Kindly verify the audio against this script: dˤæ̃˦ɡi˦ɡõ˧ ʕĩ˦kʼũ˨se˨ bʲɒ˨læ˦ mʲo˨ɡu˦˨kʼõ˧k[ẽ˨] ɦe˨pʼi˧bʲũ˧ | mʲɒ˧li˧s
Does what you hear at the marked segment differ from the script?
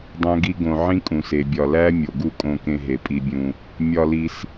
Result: yes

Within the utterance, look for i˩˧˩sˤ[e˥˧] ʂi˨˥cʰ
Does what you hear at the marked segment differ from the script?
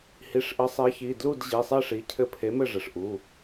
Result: no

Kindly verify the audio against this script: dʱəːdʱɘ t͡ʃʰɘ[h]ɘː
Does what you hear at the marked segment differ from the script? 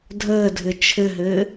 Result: yes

